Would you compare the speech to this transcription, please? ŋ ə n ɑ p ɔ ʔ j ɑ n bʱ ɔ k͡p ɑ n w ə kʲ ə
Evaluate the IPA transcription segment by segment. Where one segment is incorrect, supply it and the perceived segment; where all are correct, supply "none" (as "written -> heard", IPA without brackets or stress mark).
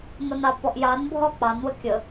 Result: none